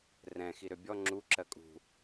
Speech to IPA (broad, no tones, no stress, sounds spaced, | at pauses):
r ɛ̃ x i ɾ ø bʲ ɔ ŋ͡ǁ u ǁ ɜ kʼ ṳ